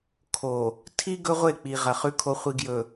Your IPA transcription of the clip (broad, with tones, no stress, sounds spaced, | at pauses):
kʰ o˨ | tʰ i˦ ɡ ɵ˦ ʁʷ e˦˨ k͡p i˨ ʁ ɐ˨ χ ʉ˨ kʰ o˨ χʷ i˨ ɡ j ɵ˨